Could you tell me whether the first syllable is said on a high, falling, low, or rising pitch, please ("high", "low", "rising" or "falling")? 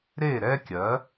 falling